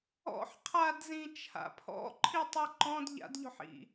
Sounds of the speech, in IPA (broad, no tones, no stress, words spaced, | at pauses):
ɔ̰ħqʰadzĩt͡ʃʰa̰ pʰɔ̰ǃʰitˤi ǃɔ̃d ʎa̰dʎɔ̤ħḭ